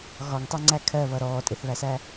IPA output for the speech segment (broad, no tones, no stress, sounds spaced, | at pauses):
ɣ ɒ ŋ tˤ ɜ ŋ͡ǀ æ kʰ ɜ β ʌ ɾ ɔː tʼ ɪ θ β æ s æ